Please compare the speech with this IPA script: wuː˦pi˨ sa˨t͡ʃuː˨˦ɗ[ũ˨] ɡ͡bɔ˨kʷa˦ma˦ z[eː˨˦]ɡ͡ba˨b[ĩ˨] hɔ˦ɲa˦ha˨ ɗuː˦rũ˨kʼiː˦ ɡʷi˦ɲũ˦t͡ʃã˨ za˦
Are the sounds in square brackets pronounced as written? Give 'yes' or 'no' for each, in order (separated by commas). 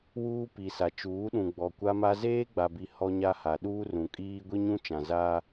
yes, no, no